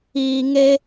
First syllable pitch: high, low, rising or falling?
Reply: low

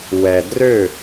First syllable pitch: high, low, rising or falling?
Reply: low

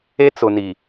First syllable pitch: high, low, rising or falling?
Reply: high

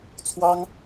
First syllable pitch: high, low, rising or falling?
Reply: high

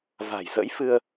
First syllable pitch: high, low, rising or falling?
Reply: low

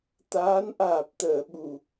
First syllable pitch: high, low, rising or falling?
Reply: rising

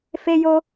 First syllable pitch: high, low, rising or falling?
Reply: high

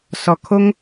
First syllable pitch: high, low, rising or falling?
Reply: low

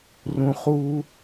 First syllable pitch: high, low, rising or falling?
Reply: low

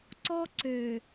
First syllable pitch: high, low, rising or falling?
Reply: high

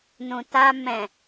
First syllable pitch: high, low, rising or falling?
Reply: low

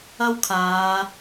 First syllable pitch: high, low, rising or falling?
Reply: high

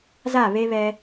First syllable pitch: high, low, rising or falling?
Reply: falling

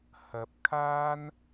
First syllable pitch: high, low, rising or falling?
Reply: rising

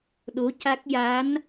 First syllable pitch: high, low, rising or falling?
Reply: rising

